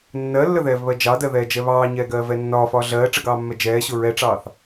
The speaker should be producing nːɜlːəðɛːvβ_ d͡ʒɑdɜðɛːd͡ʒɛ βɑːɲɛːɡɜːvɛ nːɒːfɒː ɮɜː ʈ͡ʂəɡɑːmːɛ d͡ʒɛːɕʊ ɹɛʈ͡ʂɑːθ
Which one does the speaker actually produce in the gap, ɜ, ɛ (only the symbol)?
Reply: ɜ